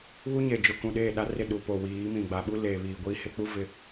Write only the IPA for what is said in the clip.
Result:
β u˦ ɲ e˨ d͡ʒ ʊ˨ k ũ˨ ɗ eː˦˨ ɗ a˦ r ɪ˦˨ ɗ u˨ p o˨ w iː˨˦ m ĩ˨ ɡ͡b a˨ ɓ u˦ l eː˨ β iː˨ ɡʷ iː˦ h ɪ˦ k͡p u˦ v ɪ˨

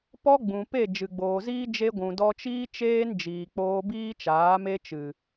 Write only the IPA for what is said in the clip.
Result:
p ɔ˦ ɡ͡b ũ˨ p e˦˨ d͡ʒ ɨ˨ ɡ͡b oː˨ z iː˦ d͡ʒ e˧ ɡʷ ũ˨ d ɔ˧ t͡ʃ iː˦ t͡ʃ eː˦ n d͡ʒ iː˨ k͡p oː˧ b iː˦ t͡ʃ aː˨˦ m e˧ t͡ʃ ɨ˨

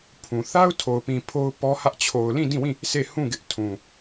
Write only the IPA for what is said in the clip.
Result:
pʰ ũ˨ θ a˦ ʊ̯ tʰ o˨ ʊ̯ p ĩ˨ pʰ o˦ ʊ̯ p ɔ˦ h ä˦ ʔ t͡ɕʰ o˨ ʊ̯ l ĩ˦˨ d ĩ˦˨ w ĩ˦˨ | s e˦˨ h ũ˦˨ ɡ ɪ˦ ʔ tʰ ũ˨

